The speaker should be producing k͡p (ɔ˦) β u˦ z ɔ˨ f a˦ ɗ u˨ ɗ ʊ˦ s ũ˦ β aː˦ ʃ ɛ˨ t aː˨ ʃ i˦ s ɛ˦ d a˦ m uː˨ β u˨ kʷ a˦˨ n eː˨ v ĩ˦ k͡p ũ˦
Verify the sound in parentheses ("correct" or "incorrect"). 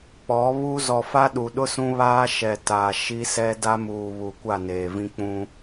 incorrect